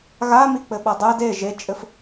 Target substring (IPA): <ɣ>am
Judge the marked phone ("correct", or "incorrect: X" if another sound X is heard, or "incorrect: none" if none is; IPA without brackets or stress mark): correct